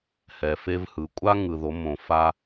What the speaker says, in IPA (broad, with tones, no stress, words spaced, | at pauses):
hɛ˩fe˧vhɯ˩˧kʷʼa˥ ŋɯ˩ðo˩˧ mõ˩fa˧